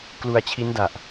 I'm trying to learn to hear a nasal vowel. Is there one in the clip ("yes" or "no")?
no